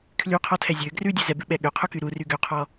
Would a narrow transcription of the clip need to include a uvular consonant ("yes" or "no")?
yes